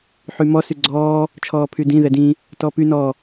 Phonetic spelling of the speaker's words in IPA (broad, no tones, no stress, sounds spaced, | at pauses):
ħ y m ɔ s y ɡ͡ǀ ɔː | t͡ʃʰ ɔː pʰ y d ĩ ð ɛ d ĩ | t ɔ p y n ɔ